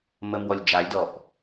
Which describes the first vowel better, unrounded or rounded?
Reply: unrounded